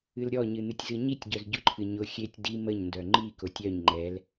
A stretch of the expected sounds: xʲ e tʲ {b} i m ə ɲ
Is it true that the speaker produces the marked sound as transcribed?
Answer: no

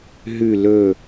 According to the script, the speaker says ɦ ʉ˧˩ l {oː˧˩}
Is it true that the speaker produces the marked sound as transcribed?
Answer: no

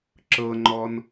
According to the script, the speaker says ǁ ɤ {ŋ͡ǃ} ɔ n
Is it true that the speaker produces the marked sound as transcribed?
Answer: yes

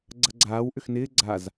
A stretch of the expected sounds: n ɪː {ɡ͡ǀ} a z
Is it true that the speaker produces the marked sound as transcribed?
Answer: yes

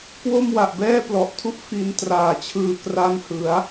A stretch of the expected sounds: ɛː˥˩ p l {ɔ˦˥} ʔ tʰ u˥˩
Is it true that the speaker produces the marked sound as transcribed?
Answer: no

